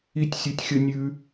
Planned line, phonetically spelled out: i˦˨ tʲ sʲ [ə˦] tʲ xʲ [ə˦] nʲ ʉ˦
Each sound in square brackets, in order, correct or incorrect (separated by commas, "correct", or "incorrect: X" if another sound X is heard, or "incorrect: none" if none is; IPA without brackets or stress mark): incorrect: ø˦, correct